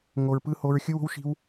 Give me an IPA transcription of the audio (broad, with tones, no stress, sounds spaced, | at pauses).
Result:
ŋ o˦ ɹ p ɯ˥ h o˥ ɹ xʲ ɯ˥ w o̤˥ w ʃ i̤˥ w